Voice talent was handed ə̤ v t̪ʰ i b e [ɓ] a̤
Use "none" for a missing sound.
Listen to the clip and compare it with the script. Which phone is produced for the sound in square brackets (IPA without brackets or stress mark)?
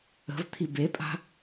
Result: pʼ